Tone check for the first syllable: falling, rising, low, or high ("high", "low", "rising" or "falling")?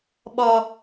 low